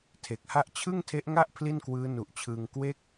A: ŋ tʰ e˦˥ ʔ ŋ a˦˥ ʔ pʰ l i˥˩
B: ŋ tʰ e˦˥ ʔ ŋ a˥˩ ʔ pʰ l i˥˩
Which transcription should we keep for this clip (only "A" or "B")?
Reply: B